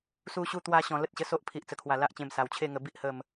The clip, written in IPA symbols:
su˧ɕu˧t̪wa˧ɕɔ̃˨˩ lə˦t̚ɕə˧so˦ʔ pʰi˨ʔt͡sə˨˩kʰwa˨˩ la˦ʔt͡ɕẽ˧m sa˨˩wt͡ɕʰe˥˧ŋə˧bi˦ʔ hə˥˧m

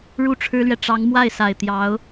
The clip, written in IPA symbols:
ɻu˥˩ʈ͡ʂʰɻ̩˥lɥɛ˨ ʈ͡ʂɑ˧˥ŋmwa˥˩ɪ̯ sa˨˩ɪ̯t̪jɑ˧˥ʊ̯

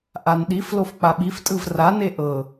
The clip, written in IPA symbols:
ʔanɗiflof k͡paɓiftʼɯv rane ʔɤ

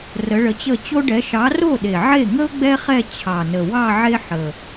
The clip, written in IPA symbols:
rə˨˥ɭə˨˥t͡ɕə˥˩ t͡ɕo˥ɖɛ˨˥ ʃɑ˨˥ro˥˩ ɗe˨˩ʕe˥˩ŋə˥ʊ̯ ɡ͡bɛ˥χɛ˥˧ t͡ɕʰɑ˨˩nə˨˩wɑ˥˧ ʕe˥ ħə˨˩

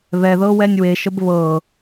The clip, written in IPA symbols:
βɛðɤwɛnʲ weʃəb βɤ

